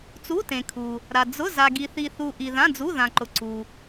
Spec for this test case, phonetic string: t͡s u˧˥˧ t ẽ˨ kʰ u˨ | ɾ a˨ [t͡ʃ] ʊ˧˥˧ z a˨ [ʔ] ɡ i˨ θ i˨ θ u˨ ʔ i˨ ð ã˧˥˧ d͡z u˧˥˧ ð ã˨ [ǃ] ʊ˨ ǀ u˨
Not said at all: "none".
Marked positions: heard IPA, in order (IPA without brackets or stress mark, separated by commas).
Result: d͡z, none, ǃ